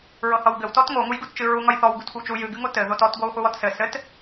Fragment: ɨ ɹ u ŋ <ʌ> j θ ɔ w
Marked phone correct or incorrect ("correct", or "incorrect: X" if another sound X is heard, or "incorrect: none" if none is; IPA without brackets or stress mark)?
correct